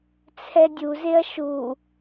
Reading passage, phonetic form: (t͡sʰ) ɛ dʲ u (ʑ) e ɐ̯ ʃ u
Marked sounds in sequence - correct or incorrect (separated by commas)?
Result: correct, incorrect